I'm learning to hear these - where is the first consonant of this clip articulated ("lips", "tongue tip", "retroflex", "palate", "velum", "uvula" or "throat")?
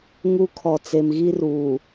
velum